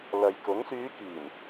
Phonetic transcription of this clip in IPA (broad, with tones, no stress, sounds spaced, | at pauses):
l ɐ˨ j k ʊ˨˥ ŋ s yː˨˧ k iː˨˩ n